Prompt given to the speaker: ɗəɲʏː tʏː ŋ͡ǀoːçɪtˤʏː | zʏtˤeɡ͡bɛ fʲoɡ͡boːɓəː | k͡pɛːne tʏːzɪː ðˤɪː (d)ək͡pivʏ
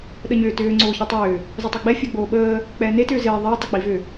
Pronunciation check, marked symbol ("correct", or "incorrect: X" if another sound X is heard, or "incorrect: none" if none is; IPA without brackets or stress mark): incorrect: tˤ